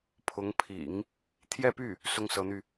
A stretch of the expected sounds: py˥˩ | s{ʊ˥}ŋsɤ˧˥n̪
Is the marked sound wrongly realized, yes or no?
no